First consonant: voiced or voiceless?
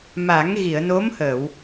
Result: voiced